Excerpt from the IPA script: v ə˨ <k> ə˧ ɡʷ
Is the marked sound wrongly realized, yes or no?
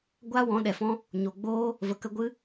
no